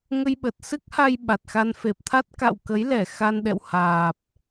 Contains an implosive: yes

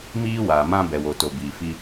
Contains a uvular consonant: no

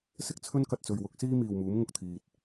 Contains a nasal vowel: no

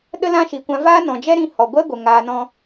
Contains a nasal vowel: yes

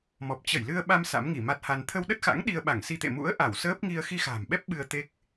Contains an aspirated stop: yes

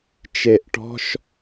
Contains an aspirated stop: no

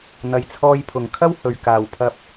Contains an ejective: no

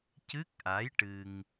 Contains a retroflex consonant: yes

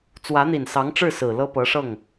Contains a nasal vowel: no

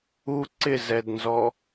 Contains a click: yes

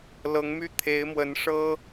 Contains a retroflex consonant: yes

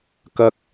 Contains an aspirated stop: no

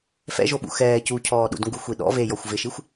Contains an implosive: yes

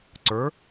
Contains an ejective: no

